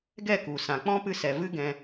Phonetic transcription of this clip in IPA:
ɡ ɛ˦˨ k u˨ s ã˨ k͡p ɔ̃˦ p ɨ˧ s ɛ˨ v ɨ˦ ɡ ɛ̃˧

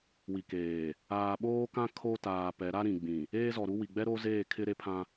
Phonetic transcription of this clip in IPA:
w i˨ k eː˨ | aː˨ ɓ oː˦ k ã˦ kʰ o˦ t aː˨ p ɛ˨˦ ɾ a˦ ɾ ĩ˨ ɡ͡b ĩ˨ | eː˦ z ɔ˨ ɾ u˦ w i˨ ɡ͡b ɛ˦ ɾ o˦ z eː˦˨ kʰ ɪ˦ ɾ e˦ pʰ ã˦

